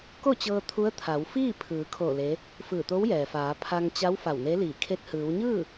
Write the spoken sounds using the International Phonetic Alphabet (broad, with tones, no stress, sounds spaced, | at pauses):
k o˥˨ t͡ɕ ɤː˧ t̪ʰ u˧˥ ə̯ t̪ʰ a˩˧ w f iː˥˨ pʰ ɯː˩˧ kʰ o˧˩ l e˧˥ | f ɯː˧˩ t̪ o˧˥ w j ɛː˩ f aː˩˧ pʰ a˧ ŋ t͡ɕ a˧˥ w f a˧˩ w n e˧˥ l iː˧˩ kʰ e˧ t̚ h ɯː˩˧ w ɲ ɯː˥˨